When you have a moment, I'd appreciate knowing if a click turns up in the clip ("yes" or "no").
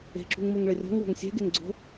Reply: yes